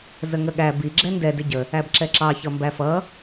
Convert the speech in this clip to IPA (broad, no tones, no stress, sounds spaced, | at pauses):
z ə ŋ ə ɠ æ b i ɡ͡ǁ ɛ n d ɛ d ɪ ɟ ə | æ b ǁ ɛ ǁ ɑ ç ʌ m b æ f ʌ